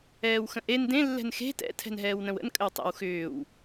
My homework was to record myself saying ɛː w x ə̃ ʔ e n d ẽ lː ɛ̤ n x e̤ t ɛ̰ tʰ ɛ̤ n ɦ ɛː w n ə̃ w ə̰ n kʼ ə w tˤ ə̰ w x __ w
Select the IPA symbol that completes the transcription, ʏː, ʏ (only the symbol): ʏː